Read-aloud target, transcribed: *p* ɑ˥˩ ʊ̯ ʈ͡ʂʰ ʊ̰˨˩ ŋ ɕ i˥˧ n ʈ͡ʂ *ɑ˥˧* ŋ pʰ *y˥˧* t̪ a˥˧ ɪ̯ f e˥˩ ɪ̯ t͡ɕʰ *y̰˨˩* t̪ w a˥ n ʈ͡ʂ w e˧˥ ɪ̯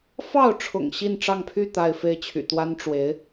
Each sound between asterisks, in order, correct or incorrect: incorrect, correct, correct, correct

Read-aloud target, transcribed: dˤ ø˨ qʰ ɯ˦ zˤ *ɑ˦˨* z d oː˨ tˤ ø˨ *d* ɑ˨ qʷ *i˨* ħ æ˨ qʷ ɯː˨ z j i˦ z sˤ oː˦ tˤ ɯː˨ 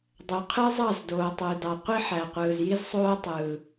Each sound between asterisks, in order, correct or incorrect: correct, correct, incorrect

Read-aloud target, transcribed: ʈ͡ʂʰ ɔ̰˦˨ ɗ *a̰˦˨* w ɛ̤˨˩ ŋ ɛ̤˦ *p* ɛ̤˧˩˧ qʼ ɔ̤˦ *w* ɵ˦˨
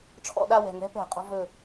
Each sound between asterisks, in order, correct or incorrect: incorrect, correct, incorrect

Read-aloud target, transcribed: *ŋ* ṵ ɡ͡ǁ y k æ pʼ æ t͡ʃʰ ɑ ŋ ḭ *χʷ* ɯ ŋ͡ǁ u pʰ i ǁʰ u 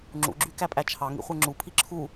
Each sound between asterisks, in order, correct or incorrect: incorrect, correct

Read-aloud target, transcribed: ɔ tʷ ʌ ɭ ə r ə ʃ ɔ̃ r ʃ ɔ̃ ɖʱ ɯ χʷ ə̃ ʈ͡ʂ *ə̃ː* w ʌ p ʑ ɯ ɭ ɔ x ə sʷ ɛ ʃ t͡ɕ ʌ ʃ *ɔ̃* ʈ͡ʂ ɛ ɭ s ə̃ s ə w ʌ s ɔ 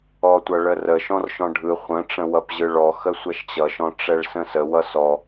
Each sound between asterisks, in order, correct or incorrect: incorrect, correct

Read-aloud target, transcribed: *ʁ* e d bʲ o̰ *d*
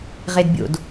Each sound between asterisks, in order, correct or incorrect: correct, correct

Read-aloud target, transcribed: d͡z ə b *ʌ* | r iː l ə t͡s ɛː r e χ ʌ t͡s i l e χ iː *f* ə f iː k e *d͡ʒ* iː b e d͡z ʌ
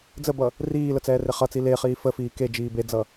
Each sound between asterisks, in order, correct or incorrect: correct, correct, correct

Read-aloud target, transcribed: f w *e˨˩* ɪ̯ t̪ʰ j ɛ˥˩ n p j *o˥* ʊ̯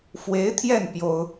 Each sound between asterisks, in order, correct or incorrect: incorrect, correct

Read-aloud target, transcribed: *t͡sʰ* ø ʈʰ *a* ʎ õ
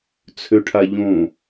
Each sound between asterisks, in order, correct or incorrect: correct, correct

